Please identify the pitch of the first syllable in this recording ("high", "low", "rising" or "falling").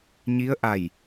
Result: rising